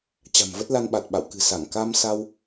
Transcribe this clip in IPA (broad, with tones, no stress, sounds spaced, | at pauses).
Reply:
t͡ɕ a̤˨˩ m v ə˦˥ t̚ l a˧ n ɓ a˨˩ t̚ ɓ a̰˧˨ w k ɨ̤˨˩ s a˧˩ ŋ k a˧ m s a˧ w